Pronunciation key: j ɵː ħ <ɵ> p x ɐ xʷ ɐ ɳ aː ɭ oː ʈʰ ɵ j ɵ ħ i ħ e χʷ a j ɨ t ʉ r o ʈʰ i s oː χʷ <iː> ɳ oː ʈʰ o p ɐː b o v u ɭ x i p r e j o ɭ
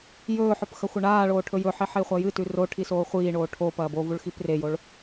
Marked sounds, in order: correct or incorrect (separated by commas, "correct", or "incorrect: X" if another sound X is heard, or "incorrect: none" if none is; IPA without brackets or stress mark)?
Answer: correct, correct